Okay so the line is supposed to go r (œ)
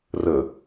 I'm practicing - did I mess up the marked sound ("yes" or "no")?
yes